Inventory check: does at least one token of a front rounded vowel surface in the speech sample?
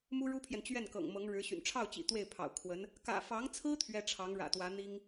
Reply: yes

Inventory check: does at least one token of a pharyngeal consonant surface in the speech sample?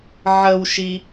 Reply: yes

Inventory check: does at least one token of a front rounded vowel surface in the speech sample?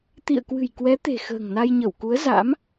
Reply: no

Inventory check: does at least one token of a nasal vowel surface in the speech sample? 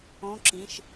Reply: yes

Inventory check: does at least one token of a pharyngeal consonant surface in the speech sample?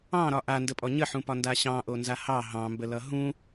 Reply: yes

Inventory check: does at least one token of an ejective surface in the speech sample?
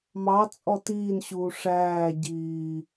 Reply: yes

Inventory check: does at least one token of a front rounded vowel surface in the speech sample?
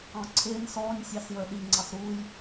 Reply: no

